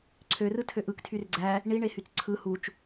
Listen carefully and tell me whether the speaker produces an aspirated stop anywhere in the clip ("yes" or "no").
yes